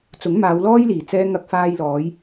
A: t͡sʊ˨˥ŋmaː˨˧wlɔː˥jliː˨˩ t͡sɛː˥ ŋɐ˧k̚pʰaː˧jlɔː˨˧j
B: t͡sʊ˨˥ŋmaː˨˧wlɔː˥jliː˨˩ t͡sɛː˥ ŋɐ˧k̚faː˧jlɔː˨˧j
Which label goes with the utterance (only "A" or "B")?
B